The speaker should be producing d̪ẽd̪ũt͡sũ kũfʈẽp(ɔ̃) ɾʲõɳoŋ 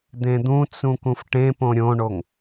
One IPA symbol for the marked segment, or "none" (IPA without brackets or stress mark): õ